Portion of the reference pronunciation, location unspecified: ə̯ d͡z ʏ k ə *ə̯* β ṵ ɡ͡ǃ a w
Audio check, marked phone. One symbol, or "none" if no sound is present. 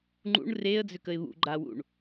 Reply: ɪ̯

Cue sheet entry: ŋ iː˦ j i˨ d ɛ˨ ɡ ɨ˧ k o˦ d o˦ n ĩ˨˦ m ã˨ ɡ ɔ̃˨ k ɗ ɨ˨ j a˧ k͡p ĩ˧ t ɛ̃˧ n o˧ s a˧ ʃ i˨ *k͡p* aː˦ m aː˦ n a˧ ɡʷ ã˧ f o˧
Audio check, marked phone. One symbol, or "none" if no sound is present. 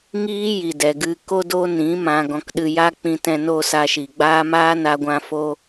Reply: ɡ͡b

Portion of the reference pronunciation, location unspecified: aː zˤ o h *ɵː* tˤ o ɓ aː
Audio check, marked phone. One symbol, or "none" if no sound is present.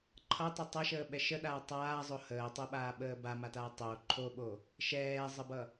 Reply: əː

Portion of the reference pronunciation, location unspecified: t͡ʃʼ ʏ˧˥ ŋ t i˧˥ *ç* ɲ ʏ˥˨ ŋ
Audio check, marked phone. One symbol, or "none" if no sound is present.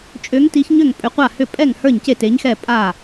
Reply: ç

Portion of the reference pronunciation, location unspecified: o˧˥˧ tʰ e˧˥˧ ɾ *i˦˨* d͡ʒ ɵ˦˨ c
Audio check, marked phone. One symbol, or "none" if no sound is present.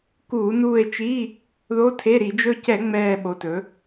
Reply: i˧˩˧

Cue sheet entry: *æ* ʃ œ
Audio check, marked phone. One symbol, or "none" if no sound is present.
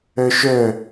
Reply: œ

